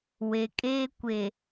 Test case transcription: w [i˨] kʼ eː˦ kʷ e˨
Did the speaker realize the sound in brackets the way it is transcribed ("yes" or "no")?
no